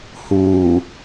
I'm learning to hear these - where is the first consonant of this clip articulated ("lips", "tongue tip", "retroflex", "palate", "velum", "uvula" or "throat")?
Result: throat